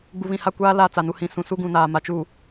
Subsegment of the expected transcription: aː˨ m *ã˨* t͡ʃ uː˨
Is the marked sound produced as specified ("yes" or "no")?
no